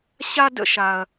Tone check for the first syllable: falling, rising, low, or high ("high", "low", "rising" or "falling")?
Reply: high